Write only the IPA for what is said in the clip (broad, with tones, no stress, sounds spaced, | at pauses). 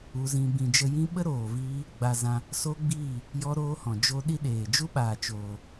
u˧ z ĩ˧ b ĩ˧ d͡ʒ ə˦ j ĩ˦ ɓ ə˦ ɾ oː˨ v iː˧ | ɡ͡b a˧ z ã˧ | s o˦ ɡ͡b iː˦˨ | j ɔ˦ ɾ oː˦ h ɔ̃˨ d͡ʒ o˦ ɗ i˦ ɗ eː˨ d͡ʒ u˦ ɓ aː˨ t͡ʃ oː˨